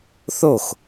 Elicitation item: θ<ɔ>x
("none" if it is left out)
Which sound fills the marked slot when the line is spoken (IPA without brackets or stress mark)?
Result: o